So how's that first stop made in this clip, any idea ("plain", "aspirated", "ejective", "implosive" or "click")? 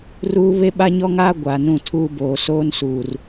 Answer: implosive